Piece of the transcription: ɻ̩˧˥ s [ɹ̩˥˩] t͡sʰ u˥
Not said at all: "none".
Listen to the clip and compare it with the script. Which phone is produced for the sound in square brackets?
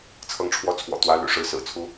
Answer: ɹ̩˨˩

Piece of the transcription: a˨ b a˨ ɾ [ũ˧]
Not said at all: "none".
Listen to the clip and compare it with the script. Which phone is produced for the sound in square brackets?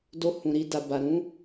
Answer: ũ˨˦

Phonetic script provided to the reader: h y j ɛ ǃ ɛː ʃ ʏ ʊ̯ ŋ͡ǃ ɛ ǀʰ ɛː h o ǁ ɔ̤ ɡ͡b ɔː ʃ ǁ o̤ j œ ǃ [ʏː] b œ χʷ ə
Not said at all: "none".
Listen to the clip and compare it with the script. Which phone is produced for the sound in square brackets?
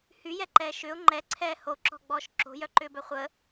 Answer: ʏː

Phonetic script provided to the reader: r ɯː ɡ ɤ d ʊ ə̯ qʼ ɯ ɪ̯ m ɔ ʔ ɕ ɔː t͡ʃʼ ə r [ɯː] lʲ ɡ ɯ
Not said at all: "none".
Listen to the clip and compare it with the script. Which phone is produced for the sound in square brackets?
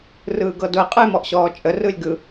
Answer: ɯ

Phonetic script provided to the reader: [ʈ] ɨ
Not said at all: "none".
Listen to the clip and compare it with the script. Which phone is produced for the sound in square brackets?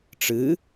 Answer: ʈ͡ʂ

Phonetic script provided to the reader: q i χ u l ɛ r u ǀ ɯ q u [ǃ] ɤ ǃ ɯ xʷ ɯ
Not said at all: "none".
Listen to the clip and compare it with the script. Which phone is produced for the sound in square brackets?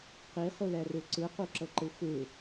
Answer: ǁ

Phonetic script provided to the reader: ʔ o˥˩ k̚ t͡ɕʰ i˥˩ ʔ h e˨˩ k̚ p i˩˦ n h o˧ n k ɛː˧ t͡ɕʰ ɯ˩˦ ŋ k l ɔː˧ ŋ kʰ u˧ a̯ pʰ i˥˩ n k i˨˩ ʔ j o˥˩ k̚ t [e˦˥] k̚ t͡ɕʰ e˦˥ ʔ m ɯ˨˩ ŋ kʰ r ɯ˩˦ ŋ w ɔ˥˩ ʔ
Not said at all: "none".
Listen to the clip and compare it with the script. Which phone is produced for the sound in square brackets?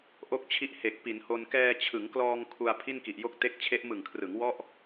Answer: e˦˥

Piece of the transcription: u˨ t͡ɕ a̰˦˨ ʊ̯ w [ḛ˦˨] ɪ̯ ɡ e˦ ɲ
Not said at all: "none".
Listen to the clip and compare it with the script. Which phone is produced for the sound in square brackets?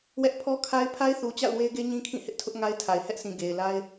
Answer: e˦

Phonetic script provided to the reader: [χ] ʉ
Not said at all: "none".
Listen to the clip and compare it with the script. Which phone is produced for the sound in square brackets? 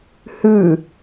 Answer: h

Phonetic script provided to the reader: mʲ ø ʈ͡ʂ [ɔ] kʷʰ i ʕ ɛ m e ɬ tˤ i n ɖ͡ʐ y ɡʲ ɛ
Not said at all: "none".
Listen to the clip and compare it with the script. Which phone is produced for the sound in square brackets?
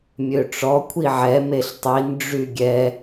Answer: ɔ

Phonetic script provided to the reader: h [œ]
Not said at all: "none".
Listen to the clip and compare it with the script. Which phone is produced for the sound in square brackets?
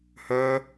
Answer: œ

